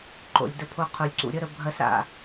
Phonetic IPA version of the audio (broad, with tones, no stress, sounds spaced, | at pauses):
ǃ o̰˨ lʲ d ə˧ pʰ o˧ qʰ u˨ lʲ ǀ ṵ˨ ɾʲ ə˦ ɾ ə˧ bʱ ɐ˧ s a̰˨